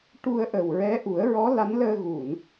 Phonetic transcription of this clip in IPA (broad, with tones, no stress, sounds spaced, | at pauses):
ʈ u˧ ə̯ ʔ ə˨˩ w ɹ ɛ˧˥ ʔ u˨˩˦ ə̯ ɹ ɔ˧˥ l a˧˥ n l əː˧ ɣ u˨˩˨ n